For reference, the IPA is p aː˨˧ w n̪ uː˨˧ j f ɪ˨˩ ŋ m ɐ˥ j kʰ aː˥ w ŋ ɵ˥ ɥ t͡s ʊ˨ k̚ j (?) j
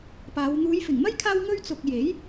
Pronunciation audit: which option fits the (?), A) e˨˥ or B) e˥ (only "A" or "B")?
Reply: A